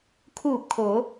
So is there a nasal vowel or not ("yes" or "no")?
no